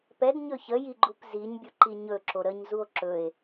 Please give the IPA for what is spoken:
pɛdɲɵ çəjiɡ͡ǃup ziɲbʲuǃi ɲɵǁo ɾəɲzuo̯ ǁɵe̯

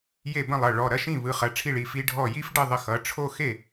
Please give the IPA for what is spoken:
je˥˩bə̃˥˩lˠʌ˩˧˩ ɭɔ˩˧˩ɾɐ˦ʃĩ˥˩ βɯ˩˧˩χɐ˩˧˩ʈ͡ʂʰi˥˩ɭi˩˧˩ fi˦ɖʱɔ˥˩ ji˦fɖə˥˩ ðˤə˦xʌ˩˧˩ ʈ͡ʂʰo˥˩xe˥˩

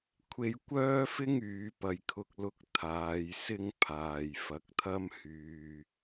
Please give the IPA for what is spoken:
kʷʰe˧jkʷœː˥fɪ˥ŋ yː˨˧pɐ˨jkʰʊ˧k̚ lʊ˨˥k̚ t̪ʰaː˨˧jsɪ˥ŋpʰaː˨j fɐ˨˥k̚t̪ʰɐ˥mhyː˨

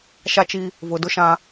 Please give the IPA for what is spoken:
ʃa˦t͡ʃi˦ | vʊ˨ dʊ˦ʃã˦

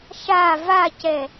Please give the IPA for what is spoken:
ʃa vacɛ

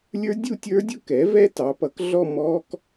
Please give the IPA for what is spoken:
lʲə˞˦˥dʲu˥˧tʲə˞˦˥dʲʊ˥˧ kɛ˩˥vɛ˦˥ tɑ˩˥pʌ˩˥k ɮɔ˥˧ mɔ˦˥k

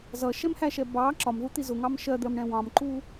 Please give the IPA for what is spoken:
zʌʃɛmhæʃɛ bɑ ǁɒmðut̪i zʊŋɑm ʃɜd̪ɜmɳɛ̃ wɑ̃mǃu

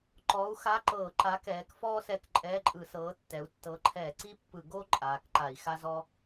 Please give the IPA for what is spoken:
ǃɔː˨˥u̯xa˧˥˧ǃɤː˧˩˧ǃa˨˥ kɛː˩˧k fɔː˥ sɛ˧˥˧kǃʼɛː˧˥˧ǃʼɯ˧˩˧sɤː˨˥ tːɛ˩˧u̯tːɤ˨˥ǃʰɛː˧˩˧ ǀi˥pːɯ˧˩˧ ɡo˥ ǃʼaː˩˧kǃa˧˩˧i̯ xa˥zɔ˥

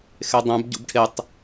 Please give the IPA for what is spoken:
xedˤɛ̃b ɟṵbʈʰetˤ

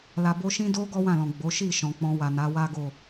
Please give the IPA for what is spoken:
la˨bo˧ʃĩ˦do˦ ɡɔ˦wã˦˨lɔ̃˨ ɡ͡bo˨˦ ʃi˦˨ ʃɔ̃˨k͡pɔ̃˧wa˨ na˨˦wa˦ɡo˦˨

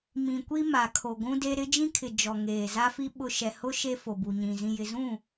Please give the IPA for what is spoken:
mĩ˨kʷi˦ ma˨kʰo˨ɡʷũ˦de˦ ɾɪ˦d͡ʒĩ˦kʰɪ˨ d͡ʒɔ˨ŋeː˨za˦fi˦ ɓʊ˦ ʃɛ˨hʊ˦ ʃe˦fo˨bu˨ ɲĩ˨ zĩ˨jɪ˨zũ˦˨

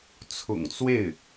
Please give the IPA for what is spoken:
t͡sʰʊ̰˨˩ŋt͡swe˥˩ɪ̯

